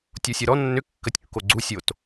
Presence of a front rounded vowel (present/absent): present